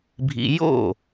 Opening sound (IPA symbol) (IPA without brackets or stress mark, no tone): bʱ